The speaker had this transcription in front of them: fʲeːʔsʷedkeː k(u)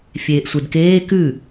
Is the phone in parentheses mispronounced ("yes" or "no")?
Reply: yes